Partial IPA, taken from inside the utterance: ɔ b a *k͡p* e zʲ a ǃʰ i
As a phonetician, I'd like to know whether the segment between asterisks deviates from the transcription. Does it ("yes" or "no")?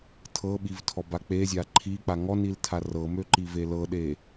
no